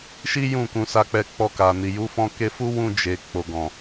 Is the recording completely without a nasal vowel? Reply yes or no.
no